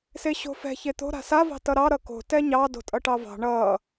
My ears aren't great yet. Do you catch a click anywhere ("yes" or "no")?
no